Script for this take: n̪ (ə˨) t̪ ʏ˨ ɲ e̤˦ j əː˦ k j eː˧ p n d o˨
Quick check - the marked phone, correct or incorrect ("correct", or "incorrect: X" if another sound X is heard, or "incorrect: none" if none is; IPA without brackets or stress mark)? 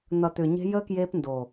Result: incorrect: ʌ˨